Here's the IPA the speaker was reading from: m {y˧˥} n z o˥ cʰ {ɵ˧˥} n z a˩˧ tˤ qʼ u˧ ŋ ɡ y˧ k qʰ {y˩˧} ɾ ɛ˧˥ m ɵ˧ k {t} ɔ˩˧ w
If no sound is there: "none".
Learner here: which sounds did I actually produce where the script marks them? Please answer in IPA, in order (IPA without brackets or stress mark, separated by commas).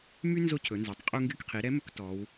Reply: y˥, ɵ˩˧, i˩˧, t